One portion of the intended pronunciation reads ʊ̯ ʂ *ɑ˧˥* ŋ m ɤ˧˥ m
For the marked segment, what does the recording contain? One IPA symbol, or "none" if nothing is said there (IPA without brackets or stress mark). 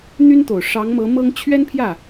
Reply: ɑ˧˥